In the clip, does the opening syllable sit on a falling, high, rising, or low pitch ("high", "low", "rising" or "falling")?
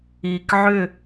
low